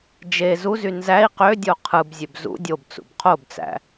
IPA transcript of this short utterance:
d͡ʒ e z u z y n z æ i̯ q ø dʲ o qʰ ɯ b zʲ ø b z ṵ dʲ o b t͡s ṵ b qʰ o b t͡s æ̰

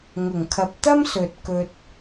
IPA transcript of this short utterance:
ŋ ʊ˨˩ ŋ kʰ ɐ˨ p̚ t̪ ɐ˥ m s ɵ˨ t̚ k ɵ˥ t̚

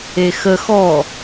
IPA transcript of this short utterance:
e x ə x ɔ

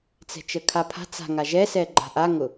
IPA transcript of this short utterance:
t͡s ɛ̤ t͡ʃ ə kʰ a pʰ a̤ t͡s a̤ ŋ a ʒ ɛ s ɛ ɡ͡ǃ a̤ ʔ a ŋ ʊ

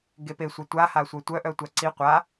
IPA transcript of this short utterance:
ɡ e p e sʷ œ tʷ a h a sʷ œ tʷ œ ʔ œ tʷ a ǀ i qʷ a

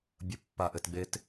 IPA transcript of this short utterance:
bʲ ə pː a ʔ ɘ t ɡ͡b e t

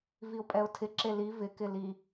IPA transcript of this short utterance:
v i ʊ̯ pʼ ɛ ʊ̯ tʰ ɪ ǁ e l i v ɪ k ɪ l i

